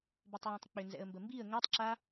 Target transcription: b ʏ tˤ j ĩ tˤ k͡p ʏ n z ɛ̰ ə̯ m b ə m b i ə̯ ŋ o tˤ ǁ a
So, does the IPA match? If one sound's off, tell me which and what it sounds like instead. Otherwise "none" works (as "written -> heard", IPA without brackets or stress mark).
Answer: none